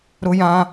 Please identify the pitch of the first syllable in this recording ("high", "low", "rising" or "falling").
high